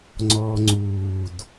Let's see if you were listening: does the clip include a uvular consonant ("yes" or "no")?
no